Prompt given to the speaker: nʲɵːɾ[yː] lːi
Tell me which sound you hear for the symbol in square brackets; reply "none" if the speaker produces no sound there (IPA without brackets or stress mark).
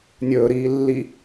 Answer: iː